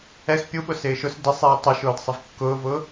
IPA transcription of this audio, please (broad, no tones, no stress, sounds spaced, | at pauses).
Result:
ɛ x pʲ u ɓ ʊ s ɪː ʃ ʊ s d ɪ sˤ iː tˤ ʊ ʃ ʊː d sˤ ɪ v kː ʊː v ʊː